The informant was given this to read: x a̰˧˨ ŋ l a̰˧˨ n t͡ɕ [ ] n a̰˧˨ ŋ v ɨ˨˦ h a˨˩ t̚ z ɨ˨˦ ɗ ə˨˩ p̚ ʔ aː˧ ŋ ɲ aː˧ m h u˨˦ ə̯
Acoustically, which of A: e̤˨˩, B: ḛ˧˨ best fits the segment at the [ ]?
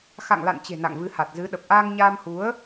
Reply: A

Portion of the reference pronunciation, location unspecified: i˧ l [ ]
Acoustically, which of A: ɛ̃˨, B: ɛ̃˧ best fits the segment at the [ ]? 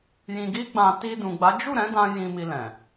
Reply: A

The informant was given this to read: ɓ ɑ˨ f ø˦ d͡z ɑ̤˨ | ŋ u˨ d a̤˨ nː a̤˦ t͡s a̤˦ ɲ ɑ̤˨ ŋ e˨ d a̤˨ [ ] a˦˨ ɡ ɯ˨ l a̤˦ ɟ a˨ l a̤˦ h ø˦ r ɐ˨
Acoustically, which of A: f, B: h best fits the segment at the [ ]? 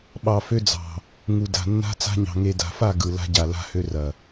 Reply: A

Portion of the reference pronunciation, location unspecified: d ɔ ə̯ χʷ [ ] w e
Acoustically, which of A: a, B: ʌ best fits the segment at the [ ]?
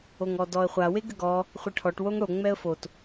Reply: A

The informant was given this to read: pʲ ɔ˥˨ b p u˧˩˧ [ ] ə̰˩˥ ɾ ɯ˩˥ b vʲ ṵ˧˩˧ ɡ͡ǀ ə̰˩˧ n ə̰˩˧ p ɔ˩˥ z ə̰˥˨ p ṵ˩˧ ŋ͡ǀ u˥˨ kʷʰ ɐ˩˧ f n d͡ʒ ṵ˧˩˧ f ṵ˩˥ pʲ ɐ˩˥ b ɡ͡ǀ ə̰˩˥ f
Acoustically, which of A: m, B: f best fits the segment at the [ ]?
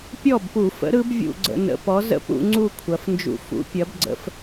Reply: B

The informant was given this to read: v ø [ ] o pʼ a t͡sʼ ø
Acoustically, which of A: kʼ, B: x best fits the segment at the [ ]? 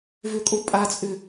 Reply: A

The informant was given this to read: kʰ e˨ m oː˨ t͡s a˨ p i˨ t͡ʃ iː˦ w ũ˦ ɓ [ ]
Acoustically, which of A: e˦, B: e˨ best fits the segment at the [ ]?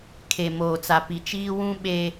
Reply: A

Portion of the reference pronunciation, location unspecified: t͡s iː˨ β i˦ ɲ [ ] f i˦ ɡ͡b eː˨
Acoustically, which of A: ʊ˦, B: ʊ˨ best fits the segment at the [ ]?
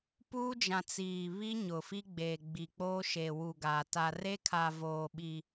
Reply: B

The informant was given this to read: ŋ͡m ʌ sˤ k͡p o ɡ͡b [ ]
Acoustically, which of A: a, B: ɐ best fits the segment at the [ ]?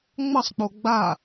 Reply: A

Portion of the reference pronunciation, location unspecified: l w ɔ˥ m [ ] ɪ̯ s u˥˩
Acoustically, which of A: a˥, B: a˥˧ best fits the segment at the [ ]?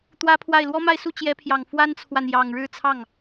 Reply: B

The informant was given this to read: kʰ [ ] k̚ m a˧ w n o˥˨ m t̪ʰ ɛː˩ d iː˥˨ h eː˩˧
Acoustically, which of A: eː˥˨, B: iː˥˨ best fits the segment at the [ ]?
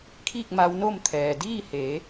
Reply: B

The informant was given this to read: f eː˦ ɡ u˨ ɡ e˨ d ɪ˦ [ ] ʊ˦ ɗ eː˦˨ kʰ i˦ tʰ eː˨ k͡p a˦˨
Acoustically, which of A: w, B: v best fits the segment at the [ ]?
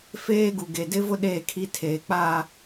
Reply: B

